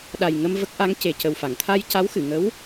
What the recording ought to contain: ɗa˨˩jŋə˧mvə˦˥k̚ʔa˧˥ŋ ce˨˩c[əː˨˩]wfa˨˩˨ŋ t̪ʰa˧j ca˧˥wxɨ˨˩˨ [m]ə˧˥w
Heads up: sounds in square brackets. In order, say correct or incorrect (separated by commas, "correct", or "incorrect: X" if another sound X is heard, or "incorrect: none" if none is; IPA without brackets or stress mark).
incorrect: ə˨˩, incorrect: ŋ